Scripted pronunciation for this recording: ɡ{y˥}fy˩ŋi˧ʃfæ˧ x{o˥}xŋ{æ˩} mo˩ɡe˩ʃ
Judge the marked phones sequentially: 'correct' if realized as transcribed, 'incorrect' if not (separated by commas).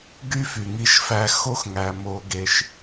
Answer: correct, correct, correct